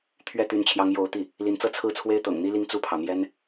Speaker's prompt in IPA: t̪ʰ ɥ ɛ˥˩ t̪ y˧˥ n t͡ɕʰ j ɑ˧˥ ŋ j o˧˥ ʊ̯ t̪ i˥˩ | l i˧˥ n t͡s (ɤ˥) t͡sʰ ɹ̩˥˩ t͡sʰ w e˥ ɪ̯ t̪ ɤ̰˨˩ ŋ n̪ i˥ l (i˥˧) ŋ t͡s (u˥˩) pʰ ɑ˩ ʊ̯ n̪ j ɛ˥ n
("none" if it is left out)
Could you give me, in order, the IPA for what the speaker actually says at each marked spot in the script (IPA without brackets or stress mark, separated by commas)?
ɤ˥, i˥˧, u˥˩